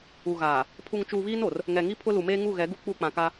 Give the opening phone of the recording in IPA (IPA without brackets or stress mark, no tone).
u